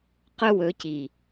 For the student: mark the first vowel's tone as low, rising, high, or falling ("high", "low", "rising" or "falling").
high